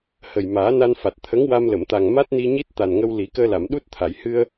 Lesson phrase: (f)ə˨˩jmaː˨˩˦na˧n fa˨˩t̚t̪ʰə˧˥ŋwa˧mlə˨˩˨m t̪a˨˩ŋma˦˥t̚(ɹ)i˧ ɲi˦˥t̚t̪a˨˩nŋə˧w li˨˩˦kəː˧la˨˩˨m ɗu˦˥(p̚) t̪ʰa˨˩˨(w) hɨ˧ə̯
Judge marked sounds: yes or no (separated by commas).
no, no, no, no